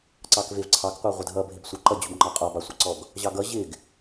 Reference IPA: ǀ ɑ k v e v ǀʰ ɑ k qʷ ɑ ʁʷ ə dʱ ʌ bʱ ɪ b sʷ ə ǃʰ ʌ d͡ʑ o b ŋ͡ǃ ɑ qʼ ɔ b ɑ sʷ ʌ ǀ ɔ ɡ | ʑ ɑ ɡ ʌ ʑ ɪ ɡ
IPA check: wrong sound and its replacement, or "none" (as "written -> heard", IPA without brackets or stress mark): ǃʰ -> ǃ